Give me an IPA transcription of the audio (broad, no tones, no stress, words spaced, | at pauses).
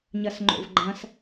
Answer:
ɲɐsŋ͡ǃo̰vɡ͡ǃɐ̃s